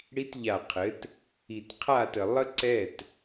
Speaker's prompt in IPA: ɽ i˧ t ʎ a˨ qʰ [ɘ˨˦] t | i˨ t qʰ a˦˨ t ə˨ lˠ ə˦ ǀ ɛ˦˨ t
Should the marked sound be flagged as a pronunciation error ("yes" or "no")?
no